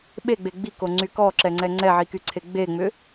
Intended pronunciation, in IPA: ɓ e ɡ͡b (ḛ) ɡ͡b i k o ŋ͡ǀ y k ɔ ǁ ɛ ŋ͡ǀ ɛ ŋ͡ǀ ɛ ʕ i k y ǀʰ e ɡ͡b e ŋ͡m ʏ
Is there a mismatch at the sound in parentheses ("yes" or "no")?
yes